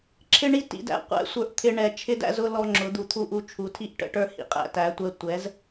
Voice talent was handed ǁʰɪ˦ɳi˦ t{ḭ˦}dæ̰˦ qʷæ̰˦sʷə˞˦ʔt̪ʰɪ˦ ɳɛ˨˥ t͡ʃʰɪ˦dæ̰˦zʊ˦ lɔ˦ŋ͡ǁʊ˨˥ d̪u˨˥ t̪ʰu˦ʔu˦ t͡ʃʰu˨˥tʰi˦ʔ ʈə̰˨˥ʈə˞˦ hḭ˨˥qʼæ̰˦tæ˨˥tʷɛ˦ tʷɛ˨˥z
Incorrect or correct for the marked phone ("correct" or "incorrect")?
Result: incorrect